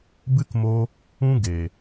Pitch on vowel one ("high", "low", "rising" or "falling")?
high